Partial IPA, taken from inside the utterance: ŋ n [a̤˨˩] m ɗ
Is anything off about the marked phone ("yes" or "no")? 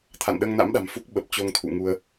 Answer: yes